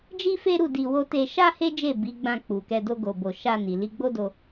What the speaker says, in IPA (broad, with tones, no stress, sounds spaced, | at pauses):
d͡ʒ i˦ f e˦ ɾ u˦˨ d i˧ w o˦ t e˧ ʃ a˦ h e˦ d͡ʒ e˦˨ b i˨˦ ɡ͡b ã˧ k͡p u˨ k ɛ˧ d o˦ ɡ o˧ b o˧ ʃ a˧ n i˨ l i˧ ɡ͡b o˦ d o˧